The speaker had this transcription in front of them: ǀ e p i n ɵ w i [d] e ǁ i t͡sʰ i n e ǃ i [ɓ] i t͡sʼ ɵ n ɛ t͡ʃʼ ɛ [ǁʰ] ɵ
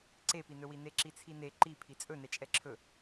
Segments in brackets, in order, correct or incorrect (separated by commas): incorrect, incorrect, correct